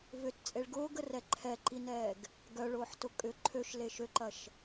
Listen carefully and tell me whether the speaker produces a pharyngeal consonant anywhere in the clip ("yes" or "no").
yes